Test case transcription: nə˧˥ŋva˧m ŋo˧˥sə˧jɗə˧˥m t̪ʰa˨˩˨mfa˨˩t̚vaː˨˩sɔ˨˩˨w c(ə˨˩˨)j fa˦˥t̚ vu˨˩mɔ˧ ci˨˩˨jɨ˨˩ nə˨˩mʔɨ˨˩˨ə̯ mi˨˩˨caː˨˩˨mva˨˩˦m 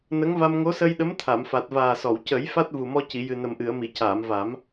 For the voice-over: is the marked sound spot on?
no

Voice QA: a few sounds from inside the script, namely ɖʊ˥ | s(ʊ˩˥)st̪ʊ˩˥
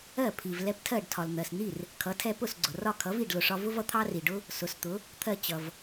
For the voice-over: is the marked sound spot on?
yes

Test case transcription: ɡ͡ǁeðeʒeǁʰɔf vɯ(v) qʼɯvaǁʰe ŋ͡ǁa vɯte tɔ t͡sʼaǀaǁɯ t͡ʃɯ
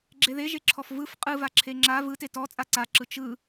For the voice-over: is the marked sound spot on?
no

